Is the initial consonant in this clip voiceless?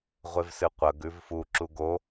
no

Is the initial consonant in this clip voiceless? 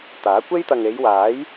yes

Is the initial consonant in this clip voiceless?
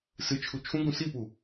yes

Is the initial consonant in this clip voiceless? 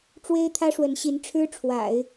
yes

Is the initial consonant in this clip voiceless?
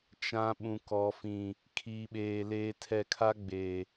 yes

